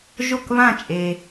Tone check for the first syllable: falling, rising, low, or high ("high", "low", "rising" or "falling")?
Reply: falling